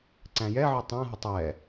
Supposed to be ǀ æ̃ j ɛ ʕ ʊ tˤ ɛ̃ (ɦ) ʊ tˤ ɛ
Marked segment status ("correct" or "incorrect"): correct